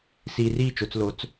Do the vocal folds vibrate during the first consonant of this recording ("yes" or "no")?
no